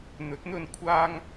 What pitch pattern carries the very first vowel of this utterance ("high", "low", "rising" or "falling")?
rising